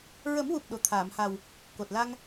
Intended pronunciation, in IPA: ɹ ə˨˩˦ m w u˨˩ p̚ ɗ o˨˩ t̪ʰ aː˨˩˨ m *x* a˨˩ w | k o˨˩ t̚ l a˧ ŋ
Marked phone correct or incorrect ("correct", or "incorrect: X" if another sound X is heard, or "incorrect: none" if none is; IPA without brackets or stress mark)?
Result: incorrect: h